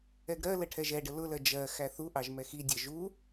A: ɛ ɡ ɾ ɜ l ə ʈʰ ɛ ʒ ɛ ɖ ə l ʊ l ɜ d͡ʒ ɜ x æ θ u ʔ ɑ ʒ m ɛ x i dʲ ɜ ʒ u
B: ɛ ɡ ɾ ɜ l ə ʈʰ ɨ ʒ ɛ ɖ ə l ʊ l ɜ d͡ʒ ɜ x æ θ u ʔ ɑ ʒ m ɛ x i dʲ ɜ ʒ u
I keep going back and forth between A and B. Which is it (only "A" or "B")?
A